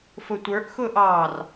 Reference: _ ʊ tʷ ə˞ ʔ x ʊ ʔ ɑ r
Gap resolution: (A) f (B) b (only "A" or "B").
A